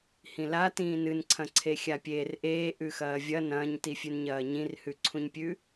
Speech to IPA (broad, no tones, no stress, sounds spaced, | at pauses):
h ĩ l a t ĩː n ɨ n ǀʰ ɐ̃ ǀʰ e xʲ a pʲ eː r ʔ eː ʔ ʉ x ɐː vʲ ɐ n ɐ̃ː ɲ t i fʲ ʉ n ɲ ɐː ɲ ĩ r h ʉ ǀʰ ũ ɲ pʲ ʉ